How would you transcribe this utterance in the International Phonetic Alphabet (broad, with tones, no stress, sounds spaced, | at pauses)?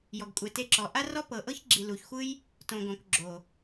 j ɔ˨ ɡ kʷʼ ɛ˨ t e˧ ǁ ɔ˨ ʔ a˦ r ɔ˦ p ɤ˨ ʔ ɤ˦ ç ɡ͡ǁ i˨ l u˨ ç xʷ ɯ˦ j | t õ˨ ɡ õ˨ k ɡ͡ǁ o˨